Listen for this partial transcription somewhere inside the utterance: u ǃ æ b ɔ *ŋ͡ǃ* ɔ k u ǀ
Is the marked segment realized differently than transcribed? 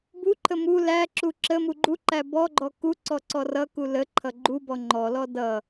yes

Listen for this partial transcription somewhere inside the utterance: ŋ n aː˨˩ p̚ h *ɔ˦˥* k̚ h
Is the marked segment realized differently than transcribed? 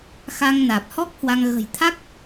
no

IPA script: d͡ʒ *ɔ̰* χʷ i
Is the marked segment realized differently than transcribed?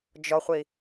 yes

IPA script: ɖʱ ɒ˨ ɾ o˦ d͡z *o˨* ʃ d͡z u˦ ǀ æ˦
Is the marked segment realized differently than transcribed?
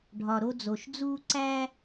no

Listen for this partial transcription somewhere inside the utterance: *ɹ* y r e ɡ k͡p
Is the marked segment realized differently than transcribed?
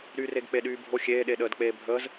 yes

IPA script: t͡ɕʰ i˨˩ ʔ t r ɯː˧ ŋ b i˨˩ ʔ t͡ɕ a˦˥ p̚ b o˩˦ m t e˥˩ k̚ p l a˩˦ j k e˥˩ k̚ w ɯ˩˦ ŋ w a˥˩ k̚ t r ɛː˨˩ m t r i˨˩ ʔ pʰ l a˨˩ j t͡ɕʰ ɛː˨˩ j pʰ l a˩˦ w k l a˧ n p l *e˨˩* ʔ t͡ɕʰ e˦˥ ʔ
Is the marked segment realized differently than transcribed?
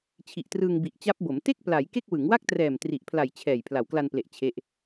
no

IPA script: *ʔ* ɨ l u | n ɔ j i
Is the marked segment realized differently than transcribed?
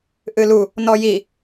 no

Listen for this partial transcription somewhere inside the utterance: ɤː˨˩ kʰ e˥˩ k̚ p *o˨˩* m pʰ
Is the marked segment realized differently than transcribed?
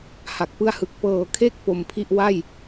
no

